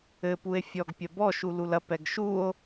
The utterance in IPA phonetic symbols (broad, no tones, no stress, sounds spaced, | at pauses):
ɘ p u e̯ fʲ ɔ ɡ pʲ ɐ b ɔ ʃ u l u l ɐ p ɛ ɡ ʃ u o̯